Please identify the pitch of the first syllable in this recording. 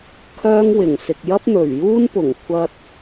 high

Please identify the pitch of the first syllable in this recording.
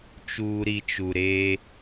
low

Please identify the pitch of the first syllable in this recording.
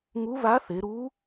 rising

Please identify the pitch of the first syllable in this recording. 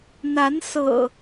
rising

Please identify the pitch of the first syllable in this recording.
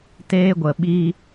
high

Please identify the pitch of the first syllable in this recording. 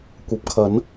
rising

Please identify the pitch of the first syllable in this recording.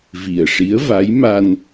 low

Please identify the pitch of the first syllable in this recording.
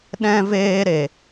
high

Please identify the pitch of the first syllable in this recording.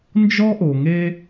high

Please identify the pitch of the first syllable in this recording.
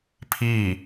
falling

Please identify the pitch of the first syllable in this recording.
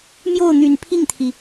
falling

